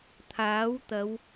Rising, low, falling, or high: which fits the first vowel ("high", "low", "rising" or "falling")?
rising